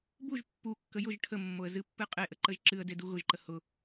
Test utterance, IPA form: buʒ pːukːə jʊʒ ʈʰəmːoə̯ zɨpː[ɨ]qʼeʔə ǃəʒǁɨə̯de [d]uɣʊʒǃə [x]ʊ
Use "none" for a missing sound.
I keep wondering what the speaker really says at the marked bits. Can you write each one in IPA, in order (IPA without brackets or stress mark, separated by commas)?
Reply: ɨ, d, h